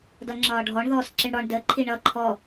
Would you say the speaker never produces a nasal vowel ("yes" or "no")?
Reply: yes